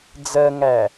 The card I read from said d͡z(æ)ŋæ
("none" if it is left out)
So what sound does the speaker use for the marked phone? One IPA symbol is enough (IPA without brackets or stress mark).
ɜ